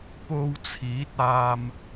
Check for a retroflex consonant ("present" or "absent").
absent